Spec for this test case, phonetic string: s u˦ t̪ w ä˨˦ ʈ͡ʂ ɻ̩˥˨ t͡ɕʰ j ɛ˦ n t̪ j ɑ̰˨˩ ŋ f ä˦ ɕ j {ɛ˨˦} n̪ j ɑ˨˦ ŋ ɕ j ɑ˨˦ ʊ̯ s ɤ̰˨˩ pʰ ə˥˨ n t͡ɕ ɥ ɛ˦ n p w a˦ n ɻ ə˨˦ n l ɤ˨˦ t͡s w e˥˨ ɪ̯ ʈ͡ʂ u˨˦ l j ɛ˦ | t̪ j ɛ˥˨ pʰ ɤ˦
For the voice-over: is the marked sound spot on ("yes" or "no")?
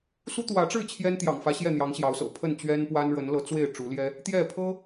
no